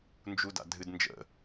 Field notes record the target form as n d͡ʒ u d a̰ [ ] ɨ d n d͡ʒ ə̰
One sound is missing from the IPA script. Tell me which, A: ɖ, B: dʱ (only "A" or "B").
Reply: B